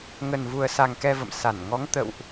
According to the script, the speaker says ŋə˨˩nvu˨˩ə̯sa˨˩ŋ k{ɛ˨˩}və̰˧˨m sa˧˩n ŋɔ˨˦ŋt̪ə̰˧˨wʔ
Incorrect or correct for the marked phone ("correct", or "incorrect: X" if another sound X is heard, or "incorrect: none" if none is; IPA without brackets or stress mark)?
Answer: incorrect: ɛ˧